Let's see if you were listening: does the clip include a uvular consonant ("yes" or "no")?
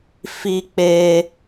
no